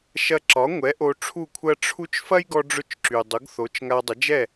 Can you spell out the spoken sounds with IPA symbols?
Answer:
ʃ ɐ˧ ǁ ɒ˩˥ ŋʷ ɛ˩˥ ʔ o˧ ʈ͡ʂʰ u˥˩ kʷʰ ɐ˥ ʈ͡ʂʰ u˥ t͡ʃ f ɐ˥ j ɡ ɔ˧ ɖ͡ʐ ʊ˧ t͡ʃ ǁ y˩ dˤ ʊ˩˥ ɡ θ o˩˥ t͡ʃ ŋ a˧ dˤ ɐ˩˥ d͡ʒ ɛ˥˩

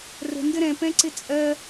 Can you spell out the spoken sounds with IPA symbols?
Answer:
r ə̤ n d ə ɾ ɛ̃ p ɛ̃ ǀ ɪ t͡sʼ ɜ

